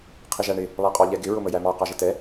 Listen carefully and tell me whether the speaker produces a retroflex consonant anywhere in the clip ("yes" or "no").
yes